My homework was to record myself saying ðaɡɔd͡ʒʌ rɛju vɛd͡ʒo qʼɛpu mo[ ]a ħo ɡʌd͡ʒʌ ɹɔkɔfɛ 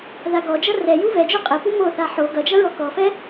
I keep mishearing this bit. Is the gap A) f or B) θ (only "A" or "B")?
B